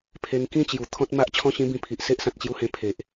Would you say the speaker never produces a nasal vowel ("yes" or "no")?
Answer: no